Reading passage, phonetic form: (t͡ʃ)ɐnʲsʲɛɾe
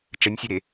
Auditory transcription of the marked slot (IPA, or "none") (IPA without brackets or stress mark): t͡ʃ